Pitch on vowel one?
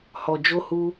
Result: low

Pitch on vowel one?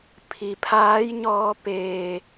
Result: low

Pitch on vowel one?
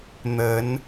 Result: rising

